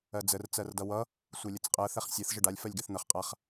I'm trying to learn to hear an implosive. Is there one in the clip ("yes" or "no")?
no